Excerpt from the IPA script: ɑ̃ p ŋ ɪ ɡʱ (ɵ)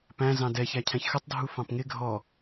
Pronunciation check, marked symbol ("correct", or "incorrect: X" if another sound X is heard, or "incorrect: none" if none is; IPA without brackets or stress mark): incorrect: ɔ